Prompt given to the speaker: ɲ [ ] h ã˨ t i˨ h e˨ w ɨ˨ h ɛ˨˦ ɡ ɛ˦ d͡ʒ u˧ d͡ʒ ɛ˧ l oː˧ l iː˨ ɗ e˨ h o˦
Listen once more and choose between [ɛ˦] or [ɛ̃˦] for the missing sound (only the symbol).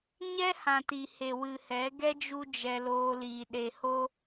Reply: ɛ˦